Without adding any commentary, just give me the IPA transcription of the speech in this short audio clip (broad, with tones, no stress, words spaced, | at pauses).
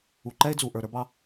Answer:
u˩ ǃɛ˥e̯d͡zu˩ʔə˞˩ ɾə˞˧bɑ˧